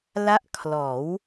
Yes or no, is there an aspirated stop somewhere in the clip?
yes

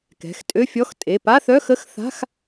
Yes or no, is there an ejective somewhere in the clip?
yes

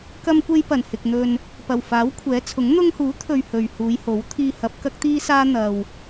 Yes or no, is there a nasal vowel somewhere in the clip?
no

